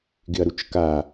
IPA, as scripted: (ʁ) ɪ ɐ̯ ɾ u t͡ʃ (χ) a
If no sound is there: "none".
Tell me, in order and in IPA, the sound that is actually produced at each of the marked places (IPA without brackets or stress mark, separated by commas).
ɡ, k